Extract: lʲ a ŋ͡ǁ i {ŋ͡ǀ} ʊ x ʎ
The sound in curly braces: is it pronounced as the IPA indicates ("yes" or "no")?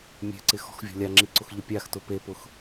no